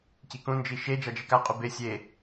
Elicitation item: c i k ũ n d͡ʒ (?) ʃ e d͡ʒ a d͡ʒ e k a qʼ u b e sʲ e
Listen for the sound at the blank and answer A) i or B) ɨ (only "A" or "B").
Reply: A